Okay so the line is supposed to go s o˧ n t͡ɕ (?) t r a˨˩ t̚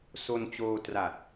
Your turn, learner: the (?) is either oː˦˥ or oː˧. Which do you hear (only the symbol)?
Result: oː˧